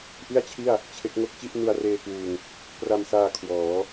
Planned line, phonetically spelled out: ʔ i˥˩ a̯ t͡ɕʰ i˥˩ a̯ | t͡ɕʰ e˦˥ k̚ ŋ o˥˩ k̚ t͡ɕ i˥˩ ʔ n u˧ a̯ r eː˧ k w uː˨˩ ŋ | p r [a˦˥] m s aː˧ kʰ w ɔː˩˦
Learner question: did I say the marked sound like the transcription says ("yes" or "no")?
no